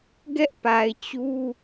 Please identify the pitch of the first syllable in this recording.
high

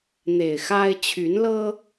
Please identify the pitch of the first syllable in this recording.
low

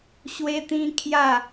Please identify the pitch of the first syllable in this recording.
high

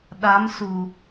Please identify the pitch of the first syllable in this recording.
rising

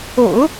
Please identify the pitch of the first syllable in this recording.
low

